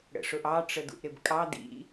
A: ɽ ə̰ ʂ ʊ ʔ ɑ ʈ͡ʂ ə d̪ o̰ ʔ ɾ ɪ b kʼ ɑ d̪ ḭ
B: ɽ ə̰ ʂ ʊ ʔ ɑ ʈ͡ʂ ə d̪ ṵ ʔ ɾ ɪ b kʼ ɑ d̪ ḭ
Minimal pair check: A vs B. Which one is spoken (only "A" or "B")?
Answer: B